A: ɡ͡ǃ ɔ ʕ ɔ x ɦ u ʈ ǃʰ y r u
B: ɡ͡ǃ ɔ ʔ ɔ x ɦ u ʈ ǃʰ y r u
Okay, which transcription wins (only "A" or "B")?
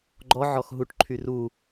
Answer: A